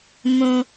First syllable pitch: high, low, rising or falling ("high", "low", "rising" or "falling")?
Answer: low